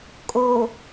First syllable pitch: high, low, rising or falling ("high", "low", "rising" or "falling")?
low